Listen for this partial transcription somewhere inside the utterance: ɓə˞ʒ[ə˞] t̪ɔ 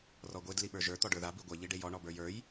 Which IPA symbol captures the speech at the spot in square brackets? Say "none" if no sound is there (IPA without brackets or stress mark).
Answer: ə˞